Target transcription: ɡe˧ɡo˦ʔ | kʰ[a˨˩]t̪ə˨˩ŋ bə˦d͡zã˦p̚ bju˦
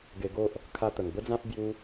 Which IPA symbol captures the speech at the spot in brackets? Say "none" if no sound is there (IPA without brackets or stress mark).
a˦